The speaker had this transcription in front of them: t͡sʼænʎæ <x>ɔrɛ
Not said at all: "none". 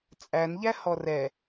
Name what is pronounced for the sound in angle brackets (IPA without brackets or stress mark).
h